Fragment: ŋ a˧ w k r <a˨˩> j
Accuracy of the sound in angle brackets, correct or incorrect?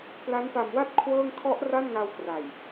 correct